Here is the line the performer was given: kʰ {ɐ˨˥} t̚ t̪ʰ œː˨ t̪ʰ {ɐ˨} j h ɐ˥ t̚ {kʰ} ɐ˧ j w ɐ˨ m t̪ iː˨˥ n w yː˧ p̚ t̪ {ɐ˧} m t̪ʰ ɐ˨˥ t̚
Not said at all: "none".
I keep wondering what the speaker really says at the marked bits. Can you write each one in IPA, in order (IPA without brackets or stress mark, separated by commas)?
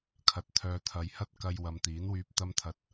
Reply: ɐ˨, ɐ˨, k, ɐ˧